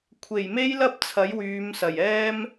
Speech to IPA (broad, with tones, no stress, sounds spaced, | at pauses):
kʷʰ e˨˩ j m e˥ j l ɐ˥ p̚ t͡sʰ ɐ˨˥ j w yː˨˧ m s ɐ˨˩ j ɛː˥ m